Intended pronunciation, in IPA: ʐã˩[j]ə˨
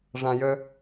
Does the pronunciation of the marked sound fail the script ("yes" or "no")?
no